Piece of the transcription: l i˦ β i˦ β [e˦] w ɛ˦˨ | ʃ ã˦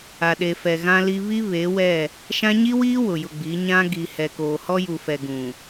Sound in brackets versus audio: incorrect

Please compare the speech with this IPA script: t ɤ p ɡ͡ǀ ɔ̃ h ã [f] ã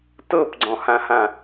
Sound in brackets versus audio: incorrect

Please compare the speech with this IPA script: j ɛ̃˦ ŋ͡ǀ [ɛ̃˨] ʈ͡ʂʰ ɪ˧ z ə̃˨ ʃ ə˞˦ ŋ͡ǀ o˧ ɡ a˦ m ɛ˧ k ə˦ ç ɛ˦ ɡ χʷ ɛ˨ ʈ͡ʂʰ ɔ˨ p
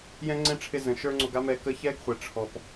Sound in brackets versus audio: incorrect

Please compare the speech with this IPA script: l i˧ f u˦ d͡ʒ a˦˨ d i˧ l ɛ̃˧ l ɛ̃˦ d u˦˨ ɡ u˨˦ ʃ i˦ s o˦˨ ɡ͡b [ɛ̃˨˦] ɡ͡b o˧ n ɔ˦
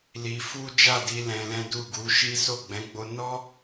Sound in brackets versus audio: correct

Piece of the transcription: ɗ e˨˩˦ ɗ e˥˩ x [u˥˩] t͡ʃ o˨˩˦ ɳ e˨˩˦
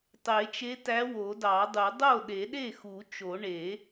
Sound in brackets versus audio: incorrect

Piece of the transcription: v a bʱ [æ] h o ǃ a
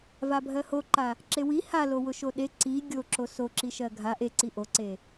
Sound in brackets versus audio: incorrect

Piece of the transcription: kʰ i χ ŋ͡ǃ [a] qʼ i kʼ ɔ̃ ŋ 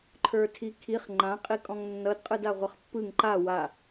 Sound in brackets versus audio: incorrect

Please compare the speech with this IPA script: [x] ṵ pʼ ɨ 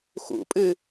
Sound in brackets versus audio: correct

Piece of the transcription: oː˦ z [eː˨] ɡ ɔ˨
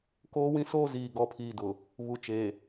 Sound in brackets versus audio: incorrect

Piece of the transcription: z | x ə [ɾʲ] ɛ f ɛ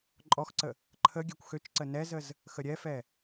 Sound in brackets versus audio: correct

